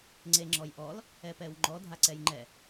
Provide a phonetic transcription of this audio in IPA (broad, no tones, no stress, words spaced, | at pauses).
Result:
ŋ͡ǀeŋ͡ǁɔjʔɔl | ɛpɛwŋ͡ǃɔ dʱaǀɛjŋ͡ǃɛ